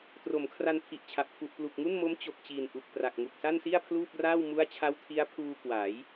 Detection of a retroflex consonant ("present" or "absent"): absent